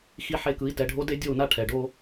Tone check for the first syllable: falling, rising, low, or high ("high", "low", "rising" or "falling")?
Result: falling